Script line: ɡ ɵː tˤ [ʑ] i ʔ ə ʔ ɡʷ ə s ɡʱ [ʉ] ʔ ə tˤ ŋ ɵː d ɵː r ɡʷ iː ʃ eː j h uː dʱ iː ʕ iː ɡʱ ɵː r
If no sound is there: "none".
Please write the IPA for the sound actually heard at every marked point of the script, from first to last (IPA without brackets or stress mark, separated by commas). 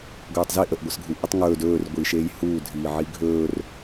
z, u